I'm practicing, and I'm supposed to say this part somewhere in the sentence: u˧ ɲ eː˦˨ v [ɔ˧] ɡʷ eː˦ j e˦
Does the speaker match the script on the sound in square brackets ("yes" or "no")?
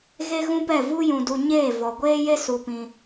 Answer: no